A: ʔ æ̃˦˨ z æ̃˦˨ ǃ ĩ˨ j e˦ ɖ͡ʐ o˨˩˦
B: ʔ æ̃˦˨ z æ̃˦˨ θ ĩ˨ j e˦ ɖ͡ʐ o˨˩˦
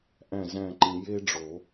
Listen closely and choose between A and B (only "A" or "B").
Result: A